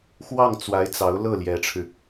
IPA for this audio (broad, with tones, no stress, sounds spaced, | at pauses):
x w ɑ˥˩ ŋ t͡s w a˧˥ ɪ̯ t͡s ɑ˧˥ ʊ̯ l ɤ˥˩ l j ɛ˧˥ ʈ͡ʂʰ ɻ̩˧